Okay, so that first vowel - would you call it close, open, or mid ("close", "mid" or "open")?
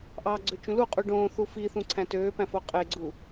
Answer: open